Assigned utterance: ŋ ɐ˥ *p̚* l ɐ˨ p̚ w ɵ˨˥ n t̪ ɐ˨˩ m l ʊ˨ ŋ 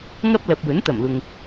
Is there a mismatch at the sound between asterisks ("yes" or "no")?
no